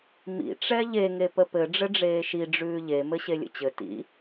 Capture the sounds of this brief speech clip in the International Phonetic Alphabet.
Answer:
m ḭ ʈ͡ʂ ɛ ʎ e ŋ e p ə p ɘ ɖ͡ʐ ɘ ɖ͡ʐ eː ʃ i ɖ͡ʐ ʉː ʎ e m ɘ ɕ e lʲ ə̰ t͡ɕ ɘ t ḭ

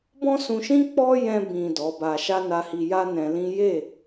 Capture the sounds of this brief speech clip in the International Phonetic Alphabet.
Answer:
b ɔ̃˦ s ũ˧ ʃ ĩ˦ k͡p ɔ˦ j ɛ̃˧ b ĩ˨ d ɔ˨˦ b a˧ ʃ a˦ n a˧ h i˧ j a˦ n ɛ̃˧ l ĩ˦ j e˦˨

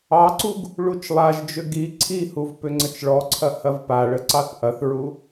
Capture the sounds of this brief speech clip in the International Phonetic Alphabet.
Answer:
ɑ ǀ u ɡ | ɭ u t͡ʃ lˠ a ʒ d͡ʒ ʏ ɡ i ǀʰ i h u v p ʏ ŋ͡ǀ ə t͡ʃ ɭ ɔ ǀʰ ɐ h ɐ v p a ɭ ə ǀ ɑ θ ʔ ɐ θ ɹ u

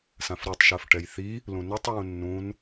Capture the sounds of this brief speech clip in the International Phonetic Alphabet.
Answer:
s ã f ɾ u tˤ ʃ ɜ f ʈ ɛ j θ i | l ũ n i tˤ w ũ nː ũ n

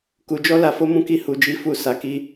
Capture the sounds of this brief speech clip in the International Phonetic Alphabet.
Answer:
k u˨ d͡ʒ ɔ˧ l a˨ f o˧ m ũ˧ k i˧ h u˨ d͡ʒ i˨˦ f u˧ s a˨ k i˧

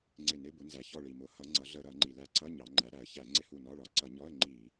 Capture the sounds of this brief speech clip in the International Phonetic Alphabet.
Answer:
ŋ͡ǀ ɪ˧˩ n ɪ˧˥˧ b ʊ˩˧ n z æ˩ ç ɔ˧˩ ɭ i˩ m ʊ˩˧ h ʌ˩˧ ŋ͡ǀ ʌ˩˧ ɮ ə˧˩˧ ɾ ʌ˧˩˧ ŋ͡ǃ i˩ l æ˧˩ ǀ ʌ˧˥˧ ɲ ɑ˩˧ ŋ͡ǃ æ˩˧ ɾ æ˩ ə̯ ç æ˧˩˧ ŋ͡ǀ ɪ˧˥˧ h u˧˩ n ɒ˧˥˧ ɭ ɒ˩˧ ǀ ʌ˧˩˧ ɲ ɔ˧˥˧ ə̯ ŋ͡ǃ i˧˩˧

